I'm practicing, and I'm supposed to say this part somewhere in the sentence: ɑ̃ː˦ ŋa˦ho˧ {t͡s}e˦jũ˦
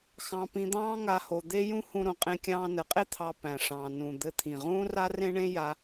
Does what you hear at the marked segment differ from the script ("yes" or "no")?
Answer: yes